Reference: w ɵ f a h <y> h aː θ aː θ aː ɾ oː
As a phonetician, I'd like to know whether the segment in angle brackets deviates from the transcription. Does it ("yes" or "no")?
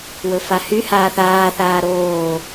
no